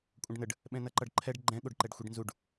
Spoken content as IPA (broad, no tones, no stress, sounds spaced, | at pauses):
kʷʼ ə̃ ɖ n ə ɖ | ɓ ɛ̃ n ʌ ǃ ʌ ɖ ǃʰ ɛ ɖ ɡ͡ǃ ɛ̃ ɠ o ɖ ǃ ɛ ɖ xʷ i ɖ n z u ɖ